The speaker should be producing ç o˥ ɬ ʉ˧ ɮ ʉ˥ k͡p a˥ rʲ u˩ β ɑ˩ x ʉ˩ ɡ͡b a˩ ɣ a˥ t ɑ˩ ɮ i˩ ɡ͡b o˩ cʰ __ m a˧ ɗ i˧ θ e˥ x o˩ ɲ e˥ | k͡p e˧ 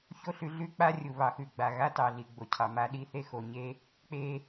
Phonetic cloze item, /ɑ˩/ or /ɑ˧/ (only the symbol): ɑ˩